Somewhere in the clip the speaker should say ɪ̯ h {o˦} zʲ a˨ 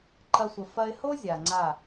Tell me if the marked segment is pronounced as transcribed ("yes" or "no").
yes